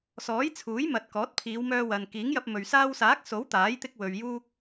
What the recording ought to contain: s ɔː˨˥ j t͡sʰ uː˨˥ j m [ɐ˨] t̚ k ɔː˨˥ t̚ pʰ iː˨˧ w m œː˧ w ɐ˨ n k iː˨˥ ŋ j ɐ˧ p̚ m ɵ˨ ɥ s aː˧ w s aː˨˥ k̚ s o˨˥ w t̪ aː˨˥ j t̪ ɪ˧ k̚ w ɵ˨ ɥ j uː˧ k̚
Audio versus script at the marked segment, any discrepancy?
no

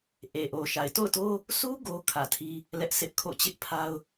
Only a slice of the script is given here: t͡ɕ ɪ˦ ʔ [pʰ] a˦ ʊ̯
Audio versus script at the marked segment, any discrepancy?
no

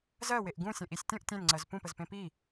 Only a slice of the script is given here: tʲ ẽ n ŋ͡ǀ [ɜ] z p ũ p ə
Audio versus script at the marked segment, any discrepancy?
no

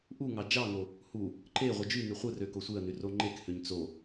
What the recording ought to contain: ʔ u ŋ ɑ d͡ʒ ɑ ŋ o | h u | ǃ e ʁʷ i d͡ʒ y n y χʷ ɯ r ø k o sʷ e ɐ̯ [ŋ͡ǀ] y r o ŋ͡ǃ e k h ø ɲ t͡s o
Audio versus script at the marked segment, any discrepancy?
yes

